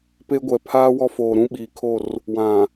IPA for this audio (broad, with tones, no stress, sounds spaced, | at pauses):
p e˦ ɡʷ ɛ˨ pʰ aː˦ w ɔ˦ f oː˨ ɾ ũ˦ ɓ iː˨ kʰ o˦˨ r | w ã˨